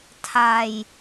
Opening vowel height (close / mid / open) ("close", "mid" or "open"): open